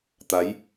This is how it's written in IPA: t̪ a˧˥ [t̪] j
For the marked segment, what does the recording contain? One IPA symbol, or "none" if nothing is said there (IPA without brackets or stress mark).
none